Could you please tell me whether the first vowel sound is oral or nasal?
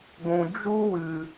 nasal